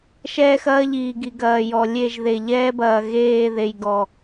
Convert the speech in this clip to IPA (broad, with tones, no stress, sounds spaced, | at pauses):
ʃ ɛː˦ x ɐː˦ ʎ iː˨ ɡ i˨ ɡ ɐː˨ j ɔ˨ lʲ e˦˨ ʒ ð e˨ ʎ ɛː˦ b ɐː˨ ɣ eː˦˨ ð e˨ j ɡ ɔ˨